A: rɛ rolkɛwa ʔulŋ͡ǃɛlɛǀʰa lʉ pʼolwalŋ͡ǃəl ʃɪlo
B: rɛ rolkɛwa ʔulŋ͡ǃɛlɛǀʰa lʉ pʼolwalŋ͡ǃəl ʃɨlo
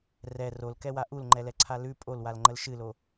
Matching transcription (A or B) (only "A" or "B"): B